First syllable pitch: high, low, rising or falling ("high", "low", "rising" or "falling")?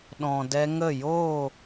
low